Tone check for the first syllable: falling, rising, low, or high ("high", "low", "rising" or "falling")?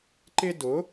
high